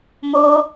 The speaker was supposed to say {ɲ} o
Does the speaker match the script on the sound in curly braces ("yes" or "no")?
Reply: no